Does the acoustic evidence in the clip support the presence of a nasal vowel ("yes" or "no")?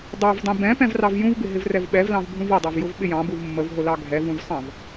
yes